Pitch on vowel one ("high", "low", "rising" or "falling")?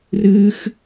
high